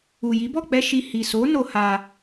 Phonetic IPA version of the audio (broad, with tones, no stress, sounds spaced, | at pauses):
u˨ j i˨˦ b ɔ˦˨ k͡p ɛ˧ ʃ i˧ h i˨ s o˨˦ n o˧ h a˧